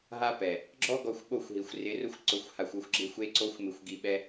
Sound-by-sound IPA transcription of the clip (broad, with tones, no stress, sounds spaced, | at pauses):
ɦ a˦ p ɛ˨ | ɡ͡ǁ ɔ˦ ɡ ɔ˧ xʷ ɓ o˦˨ xʷ ɦ i˨ xʷ r ɪ˨˦ r ʊ˧ xʷ ǀ ʊ˨ xʷ h a˨ xʷ ʊ˦ xʷ ɡ͡ǁ ɪ˦ xʷ e˦ ǀ o˦ xʷ m ɪ˧ xʷ ɡ i˧ ɓ ɛ˦